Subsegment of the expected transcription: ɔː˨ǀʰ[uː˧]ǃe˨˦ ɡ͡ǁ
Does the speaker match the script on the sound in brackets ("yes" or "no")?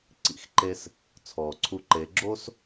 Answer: no